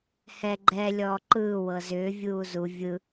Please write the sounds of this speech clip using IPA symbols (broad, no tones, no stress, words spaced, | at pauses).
hɛ ɡ͡ǃɛ lʲɔːǃɯː wɤzʏː vʲuːzu vʲɯ